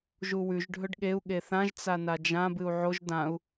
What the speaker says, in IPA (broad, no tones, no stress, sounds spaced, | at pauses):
ʒ u w ʉ ʒ ɖʱ ɵ ɖ ɠ e u̯ ɠ e θ ã ʒ t͡s a n a d͡ʒ ã b ɨ u̯ ʕ o ʒ d ã u̯